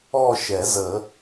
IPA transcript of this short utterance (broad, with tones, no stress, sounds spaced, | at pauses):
ɔ˥˧ ʃ ɛ˨˩˦ z ə˨˩˦